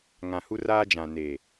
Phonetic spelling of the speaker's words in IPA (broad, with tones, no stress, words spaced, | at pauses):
ŋã˨hu˦raː˦d͡ʒã˨ neː˨